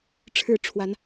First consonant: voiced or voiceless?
voiceless